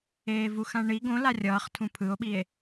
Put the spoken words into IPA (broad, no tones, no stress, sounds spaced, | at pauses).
eː v u x ã ɳ i ɡ õ l a rʲ ʌː χ tʰ ũ pʰ ɯ o̯ ɓ i e̯